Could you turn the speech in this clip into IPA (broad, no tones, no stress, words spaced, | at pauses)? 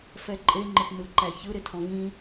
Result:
fɛǃʼe ŋ͡ǃɪtnɯǃæçɯ ɾɪtʰɔ̃vĩ